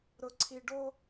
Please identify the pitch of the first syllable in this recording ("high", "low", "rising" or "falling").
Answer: low